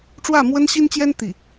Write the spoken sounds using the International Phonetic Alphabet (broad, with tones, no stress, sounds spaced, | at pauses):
ʈ͡ʂ w ä˥˩ m w ə˥ n ɕ i˥ n t͡ɕ j ɛ˥ n t̪ i˥˩